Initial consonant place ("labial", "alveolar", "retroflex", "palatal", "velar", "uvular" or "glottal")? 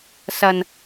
alveolar